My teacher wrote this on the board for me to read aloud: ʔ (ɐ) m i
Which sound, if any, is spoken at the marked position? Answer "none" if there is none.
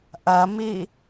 ɐ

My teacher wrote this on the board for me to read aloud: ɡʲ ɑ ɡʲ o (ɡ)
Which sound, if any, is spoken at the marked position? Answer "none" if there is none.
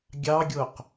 q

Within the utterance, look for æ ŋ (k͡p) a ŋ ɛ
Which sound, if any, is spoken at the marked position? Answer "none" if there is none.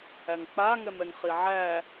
k͡p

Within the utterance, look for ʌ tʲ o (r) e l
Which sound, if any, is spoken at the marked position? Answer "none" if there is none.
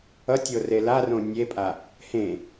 r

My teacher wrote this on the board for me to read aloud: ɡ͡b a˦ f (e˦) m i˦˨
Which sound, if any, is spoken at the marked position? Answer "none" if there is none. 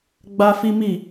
i˦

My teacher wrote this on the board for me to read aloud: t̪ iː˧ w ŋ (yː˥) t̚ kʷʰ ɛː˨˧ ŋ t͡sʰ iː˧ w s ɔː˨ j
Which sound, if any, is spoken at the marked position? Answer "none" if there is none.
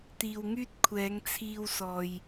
yː˥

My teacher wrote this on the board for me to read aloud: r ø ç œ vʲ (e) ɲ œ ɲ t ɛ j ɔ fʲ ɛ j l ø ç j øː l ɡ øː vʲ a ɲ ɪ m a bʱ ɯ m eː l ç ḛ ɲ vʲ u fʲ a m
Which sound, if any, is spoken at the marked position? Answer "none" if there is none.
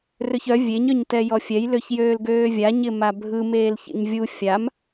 e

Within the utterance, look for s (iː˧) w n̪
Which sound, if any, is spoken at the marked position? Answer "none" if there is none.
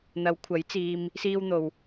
iː˧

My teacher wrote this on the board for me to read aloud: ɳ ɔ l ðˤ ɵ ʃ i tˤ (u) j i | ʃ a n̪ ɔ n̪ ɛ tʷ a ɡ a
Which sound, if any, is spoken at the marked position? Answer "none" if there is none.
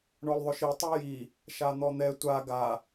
y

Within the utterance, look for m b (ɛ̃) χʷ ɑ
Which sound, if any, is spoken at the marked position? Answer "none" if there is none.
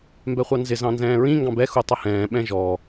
ɛ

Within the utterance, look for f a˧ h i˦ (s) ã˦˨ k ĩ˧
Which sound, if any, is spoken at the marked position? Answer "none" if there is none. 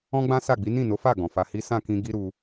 s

